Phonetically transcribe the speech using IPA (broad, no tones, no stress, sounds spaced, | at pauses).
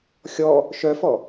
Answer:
xʲ ɔ | ʃ œ f ɔ